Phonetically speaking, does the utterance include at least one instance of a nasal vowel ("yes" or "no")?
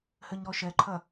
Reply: no